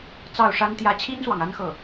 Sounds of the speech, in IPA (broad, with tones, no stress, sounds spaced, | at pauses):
t͡s ɑ˥˩ ʊ̯ ʂ a˥ n t̪ j ä˥ t͡ɕʰ i˥ n s w ɑ˨ ŋ a˥ n x ɤ˥˩